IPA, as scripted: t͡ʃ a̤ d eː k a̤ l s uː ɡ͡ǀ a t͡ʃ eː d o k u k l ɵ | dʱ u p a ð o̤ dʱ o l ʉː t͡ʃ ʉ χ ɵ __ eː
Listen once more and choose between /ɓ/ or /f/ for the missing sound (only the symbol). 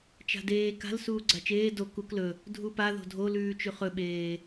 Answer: ɓ